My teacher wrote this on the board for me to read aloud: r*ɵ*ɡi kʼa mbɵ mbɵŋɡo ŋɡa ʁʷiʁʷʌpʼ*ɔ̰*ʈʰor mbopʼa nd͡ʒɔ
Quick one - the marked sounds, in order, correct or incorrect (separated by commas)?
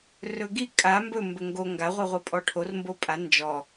correct, incorrect